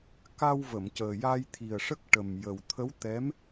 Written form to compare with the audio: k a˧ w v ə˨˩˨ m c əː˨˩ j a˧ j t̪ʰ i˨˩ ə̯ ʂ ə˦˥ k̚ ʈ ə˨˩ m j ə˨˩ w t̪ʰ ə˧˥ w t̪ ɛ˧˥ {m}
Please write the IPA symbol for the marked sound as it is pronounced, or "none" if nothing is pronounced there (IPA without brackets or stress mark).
m